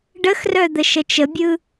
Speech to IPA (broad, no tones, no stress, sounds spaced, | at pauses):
ɖ ə x r œ d̪ ə ʃ ə t͡ʃ ə bʲ ɯ